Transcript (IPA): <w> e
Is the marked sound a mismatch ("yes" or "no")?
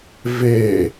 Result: yes